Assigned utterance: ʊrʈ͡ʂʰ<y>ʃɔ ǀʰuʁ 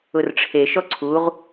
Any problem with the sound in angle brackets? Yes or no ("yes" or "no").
yes